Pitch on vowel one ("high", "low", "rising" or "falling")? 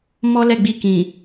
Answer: high